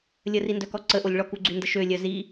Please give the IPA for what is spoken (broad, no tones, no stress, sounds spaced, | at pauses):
lʲ ə r i n d œ k ɔ ǀ ə ʔ o lʲ ɭ ɔ k u ɡ͡ǀ y n d ə ʃ ø lʲ œ z i